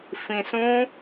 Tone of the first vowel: low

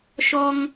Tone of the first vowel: high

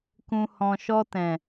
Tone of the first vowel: low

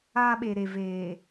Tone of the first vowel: high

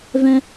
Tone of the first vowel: high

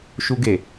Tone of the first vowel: high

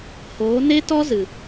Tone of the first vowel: rising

